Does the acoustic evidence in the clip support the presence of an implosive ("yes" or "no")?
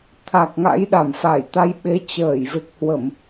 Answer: yes